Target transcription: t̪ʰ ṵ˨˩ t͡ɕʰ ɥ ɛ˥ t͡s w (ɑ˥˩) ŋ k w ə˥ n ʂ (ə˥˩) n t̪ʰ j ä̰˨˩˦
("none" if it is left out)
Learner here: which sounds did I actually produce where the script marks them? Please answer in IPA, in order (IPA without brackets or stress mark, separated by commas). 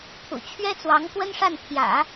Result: ɑ˧˥, a˥˩